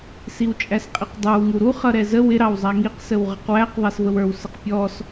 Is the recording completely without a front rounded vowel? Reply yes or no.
yes